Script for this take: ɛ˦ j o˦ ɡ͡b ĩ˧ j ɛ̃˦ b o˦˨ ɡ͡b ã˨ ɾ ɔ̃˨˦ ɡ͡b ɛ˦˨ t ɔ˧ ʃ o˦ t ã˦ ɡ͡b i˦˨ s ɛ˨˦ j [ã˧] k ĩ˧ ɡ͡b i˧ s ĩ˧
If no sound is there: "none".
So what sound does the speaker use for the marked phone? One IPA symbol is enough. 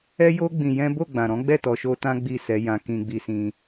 ã˧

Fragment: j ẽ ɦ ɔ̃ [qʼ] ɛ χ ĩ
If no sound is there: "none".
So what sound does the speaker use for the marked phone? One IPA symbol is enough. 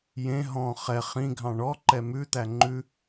χ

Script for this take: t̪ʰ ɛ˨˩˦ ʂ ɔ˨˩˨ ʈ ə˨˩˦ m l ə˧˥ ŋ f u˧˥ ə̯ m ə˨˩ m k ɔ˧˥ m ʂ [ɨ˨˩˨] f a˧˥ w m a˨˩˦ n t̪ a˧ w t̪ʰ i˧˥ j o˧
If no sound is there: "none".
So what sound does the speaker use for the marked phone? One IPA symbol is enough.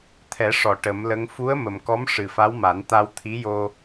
ɨ˨˩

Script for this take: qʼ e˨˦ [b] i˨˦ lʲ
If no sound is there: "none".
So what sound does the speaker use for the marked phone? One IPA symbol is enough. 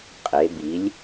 b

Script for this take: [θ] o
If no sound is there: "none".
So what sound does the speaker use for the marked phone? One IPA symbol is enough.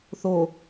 θ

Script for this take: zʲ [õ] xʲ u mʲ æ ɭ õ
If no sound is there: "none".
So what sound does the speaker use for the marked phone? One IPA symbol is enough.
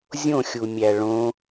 õ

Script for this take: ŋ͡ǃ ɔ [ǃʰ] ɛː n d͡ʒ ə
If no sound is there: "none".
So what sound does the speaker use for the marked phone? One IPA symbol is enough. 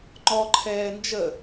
ǃʰ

